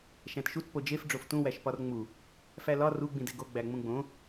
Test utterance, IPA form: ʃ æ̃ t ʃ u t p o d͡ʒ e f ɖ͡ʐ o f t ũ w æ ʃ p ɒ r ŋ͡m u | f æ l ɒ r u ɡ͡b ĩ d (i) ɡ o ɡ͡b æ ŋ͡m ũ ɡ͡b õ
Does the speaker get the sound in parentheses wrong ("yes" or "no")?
yes